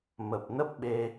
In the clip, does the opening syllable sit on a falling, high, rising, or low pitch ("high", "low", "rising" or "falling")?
low